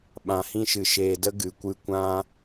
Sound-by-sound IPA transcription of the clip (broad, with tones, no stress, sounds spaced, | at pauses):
ɓ ã˨ h ĩ˧ ʃ ɨ˨ ʃ eː˨ d ə˧ ɡ ɨ˨ kʷ ɨ˧ kʷ ã˧